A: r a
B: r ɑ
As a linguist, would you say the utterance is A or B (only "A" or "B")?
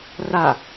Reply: A